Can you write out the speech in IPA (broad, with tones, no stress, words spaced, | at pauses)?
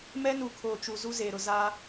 mɛ˦nu˨ kʰoː˨t͡ʃu˨ zu˦zeː˨ɾʊ˨ za˦